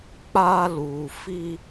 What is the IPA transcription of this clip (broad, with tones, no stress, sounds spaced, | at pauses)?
k͡p a˧ l u˨ f i˧